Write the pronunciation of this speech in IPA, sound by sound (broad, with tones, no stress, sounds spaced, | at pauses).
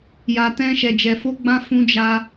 j a˨ t ɛ̃˧ ʃ ɛ˨ d͡ʒ ɛ˨ f o˧ ɡ͡b ã˧ f ũ˧ d͡ʒ a˧